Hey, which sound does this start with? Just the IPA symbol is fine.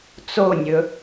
t͡s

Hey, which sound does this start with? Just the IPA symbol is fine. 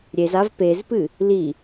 ɾʲ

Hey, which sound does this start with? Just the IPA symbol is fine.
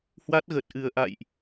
h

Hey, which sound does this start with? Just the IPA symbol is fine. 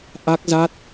ʔ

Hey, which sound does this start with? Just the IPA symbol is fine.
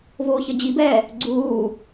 v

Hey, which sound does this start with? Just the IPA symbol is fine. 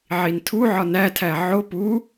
ʕ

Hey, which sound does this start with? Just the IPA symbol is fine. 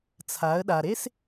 t͡sʰ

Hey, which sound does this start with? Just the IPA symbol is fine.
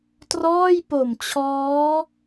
t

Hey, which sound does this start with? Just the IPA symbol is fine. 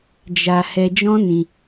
d͡ʒ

